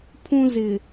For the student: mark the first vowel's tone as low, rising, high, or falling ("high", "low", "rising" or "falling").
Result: high